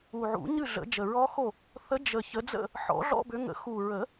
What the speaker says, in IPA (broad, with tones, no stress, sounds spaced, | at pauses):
u˨˩ ʕ ṵ˨˩˦ ɲ ɨ˥˨ ɮ ə̰˨˩˦ d͡ʒ ə˨˩ ɹ ɔ˦˥ x o˥˨ | θ ə˨˦ d͡ʒ ə˨˩ ç ə˨˦ d͡z ə̰˥˨ | ħ ɔ̰˨˩˦ ɮ ɔ̰˧˥˧ b ʏ˨˦ ŋ ə̰˨˩˦ x u˨˩ ɹ ə˨˩˦